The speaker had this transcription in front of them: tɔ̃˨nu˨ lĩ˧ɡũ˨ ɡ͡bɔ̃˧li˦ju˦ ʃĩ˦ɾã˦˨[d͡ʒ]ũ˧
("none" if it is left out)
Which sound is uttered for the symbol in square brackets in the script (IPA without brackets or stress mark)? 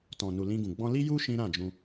d͡ʒ